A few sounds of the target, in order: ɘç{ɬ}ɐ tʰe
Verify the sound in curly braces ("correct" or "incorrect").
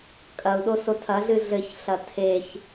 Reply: correct